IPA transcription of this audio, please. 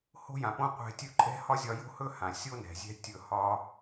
h o̤˦ j ã˨ p õ˦ qʷ ɛ̤˧ tʲ ɵ˦ ǃʼ ɛ̤˦ h ɒ˦ zʲ ɒ˧ j o̤˦ h ɵ˦ h ã˨ sʲ o˦ n ɛ̤˨ zʲ ɛ̤˦ tʲ ɵ˦˨ h ɒ˦

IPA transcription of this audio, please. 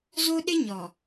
z o˦ ɗ ɪ˦ ɲ ɔ˨

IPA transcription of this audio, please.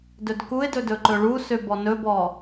d ɵ d k u ɪ̯ d ɵ d ɵ ǃ ɵ ɭ u s ø b ɔ n ɵ b ɔ

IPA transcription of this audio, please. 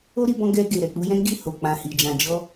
o˦ ɾ i˧ b ɔ̃˧ ɡ ɛ˧ ɡ e˨ ɾ ɛ˨ k͡p u˧ j ɛ̃˦ ɡ i˦˨ h o˨ k͡p ã˨ h i˨ d͡ʒ ã˨ d͡ʒ ɔ˧

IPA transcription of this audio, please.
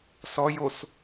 s ɔ j o s

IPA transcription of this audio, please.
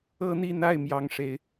ɤ˥ n̪ i˥˧ n̪ a˥˩ ɪ̯ m j ɑ˥ ŋ ʂ e˧˥ ɪ̯

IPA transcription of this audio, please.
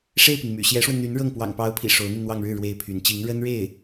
ʂ e˥˩ ɪ̯ p i˩ ŋ m y̰˨˩ ɕ j ɛ˧˥ ʂ w ə˧ n n̪ y˧˥ n ɻ ɤ˥˩ ŋ p w ɑ̰˨˩ ŋ p ɑ˧˥ ʊ̯ pʰ ḭ˨˩ ʂ o˧˥ ʊ̯ n̪ i˧ n n̪ w ɑ˥˧ ŋ ɻ ɻ̩˥˩ ɻ w e˥ ɪ̯ pʰ y˧˥ n t͡ɕ i˧˥ ŋ ɻ ə˥ n ɻ e˥˩ ɪ̯

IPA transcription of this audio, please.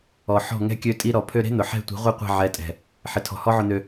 ɔ˨ ħ ɔ̤˦˨ ŋ ɛ̤˦ kʲ ø˧ tʼ i˧ ɾ ɔ˨ pʰ ø˧ ɾ e̤˦ n̪ ʊ˨ ħ ɛ̤˦˨ tʷ i̤˨˦ ʁʷ i˦˨ qʷ ɛ̤˦˨ ʕ ɛ˨˦ tʼ ɛ̤˨ | ħ ɪ˨ tʰ ɔ̤˨ h ɔ˦ ʕ ʊ˧ n̪ ø˧

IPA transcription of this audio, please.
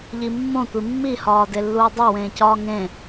ʎ i mː õ tʷ i mː i h ɒː d e lː uː dˤ o w ẽː c ɒː ŋ ẽ

